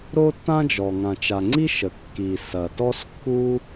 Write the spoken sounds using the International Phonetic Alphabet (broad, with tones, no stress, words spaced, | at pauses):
ɾo˥tːã˥d͡ʒɔ˩ ŋã˩t͡ʃa˩ŋ͡ǀi˥ ʃə˩ kːi˩sɐ˩ tɔ˥skːu˥